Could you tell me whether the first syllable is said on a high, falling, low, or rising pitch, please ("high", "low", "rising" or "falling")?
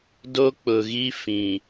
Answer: high